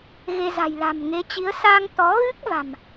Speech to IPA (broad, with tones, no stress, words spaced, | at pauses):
ɣe˧za̤˨˩jla̤˨˩m ŋe˨˦t͡ɕi˨˦ə̯ sa˧ŋt̪ɔ˨˦ɣɨ˦˥k̚ va̤˨˩m